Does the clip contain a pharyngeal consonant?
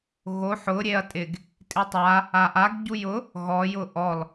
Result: yes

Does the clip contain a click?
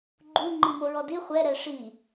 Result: yes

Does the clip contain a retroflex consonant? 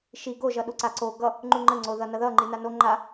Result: no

